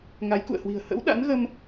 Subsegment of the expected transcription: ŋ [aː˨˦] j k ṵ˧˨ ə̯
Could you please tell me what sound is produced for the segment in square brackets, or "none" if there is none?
a˨˦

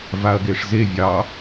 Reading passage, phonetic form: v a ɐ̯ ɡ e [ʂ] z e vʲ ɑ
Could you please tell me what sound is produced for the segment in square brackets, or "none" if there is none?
ʂ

